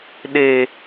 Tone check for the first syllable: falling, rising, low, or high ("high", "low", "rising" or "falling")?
high